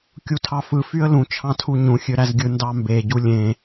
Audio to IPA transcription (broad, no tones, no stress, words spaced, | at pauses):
kʲutʰɑfɯ fyə̯lũ t͡ʃʰɑ̃tʰuɲũ xʲøɾæzɡʲɯ ndɑmbe ɟulʲẽ